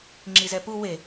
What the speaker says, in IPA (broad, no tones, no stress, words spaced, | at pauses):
ŋ͡ǁizɛpu we